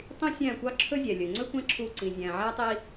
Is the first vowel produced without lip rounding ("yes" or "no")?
yes